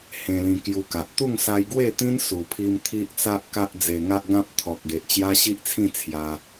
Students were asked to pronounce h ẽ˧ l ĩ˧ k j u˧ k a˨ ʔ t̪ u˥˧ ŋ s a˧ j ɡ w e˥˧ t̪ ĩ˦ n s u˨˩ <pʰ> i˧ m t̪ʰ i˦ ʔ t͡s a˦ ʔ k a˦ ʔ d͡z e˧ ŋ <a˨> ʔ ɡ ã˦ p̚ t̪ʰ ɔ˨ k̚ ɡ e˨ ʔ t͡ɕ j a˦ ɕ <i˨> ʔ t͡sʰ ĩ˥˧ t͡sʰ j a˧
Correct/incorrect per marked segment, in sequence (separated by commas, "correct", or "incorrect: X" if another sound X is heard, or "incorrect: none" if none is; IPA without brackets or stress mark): correct, incorrect: a˦, incorrect: i˦